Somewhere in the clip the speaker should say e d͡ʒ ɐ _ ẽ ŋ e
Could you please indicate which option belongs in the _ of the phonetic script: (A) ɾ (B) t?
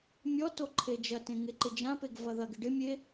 B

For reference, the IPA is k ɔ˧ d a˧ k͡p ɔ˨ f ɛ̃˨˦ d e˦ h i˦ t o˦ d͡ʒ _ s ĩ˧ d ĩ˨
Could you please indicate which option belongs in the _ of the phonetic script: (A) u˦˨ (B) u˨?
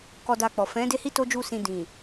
A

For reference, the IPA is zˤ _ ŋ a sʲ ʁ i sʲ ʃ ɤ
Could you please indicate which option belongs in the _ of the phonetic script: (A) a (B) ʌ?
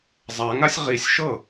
A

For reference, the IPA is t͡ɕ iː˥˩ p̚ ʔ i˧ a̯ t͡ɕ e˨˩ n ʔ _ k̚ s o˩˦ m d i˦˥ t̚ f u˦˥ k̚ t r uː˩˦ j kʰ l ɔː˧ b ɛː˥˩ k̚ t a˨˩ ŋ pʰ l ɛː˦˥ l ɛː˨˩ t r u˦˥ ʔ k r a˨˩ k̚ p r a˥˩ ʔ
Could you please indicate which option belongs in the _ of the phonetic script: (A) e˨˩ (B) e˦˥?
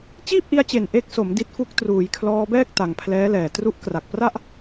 B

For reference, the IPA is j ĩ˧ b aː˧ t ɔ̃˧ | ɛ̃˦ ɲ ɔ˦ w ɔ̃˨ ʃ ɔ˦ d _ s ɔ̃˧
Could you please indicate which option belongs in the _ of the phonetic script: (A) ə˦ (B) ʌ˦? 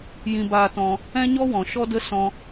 A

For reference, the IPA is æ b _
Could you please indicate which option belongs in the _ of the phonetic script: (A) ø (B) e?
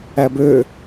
A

